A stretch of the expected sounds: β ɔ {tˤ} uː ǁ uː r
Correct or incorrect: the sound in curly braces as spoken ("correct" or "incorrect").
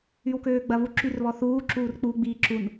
incorrect